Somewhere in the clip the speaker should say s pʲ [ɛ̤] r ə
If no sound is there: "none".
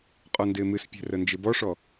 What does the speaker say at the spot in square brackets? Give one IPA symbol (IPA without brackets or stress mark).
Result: ɛ̤